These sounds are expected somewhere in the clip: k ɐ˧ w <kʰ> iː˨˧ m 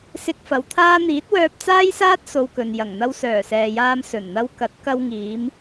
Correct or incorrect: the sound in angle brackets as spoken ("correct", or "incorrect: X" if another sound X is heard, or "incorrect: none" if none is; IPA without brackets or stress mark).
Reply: incorrect: ŋ